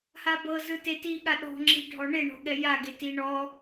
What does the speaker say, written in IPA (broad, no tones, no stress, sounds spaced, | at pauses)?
h a b ɤ z ɯ t e t i ɠ a ɗ ɔ̤ ŋ͡ǁ i̤ ɖʱ ɔ ɳ e ɳ ɔ̤ ɠ ɛ j a ɡ e t i ɳ ɔ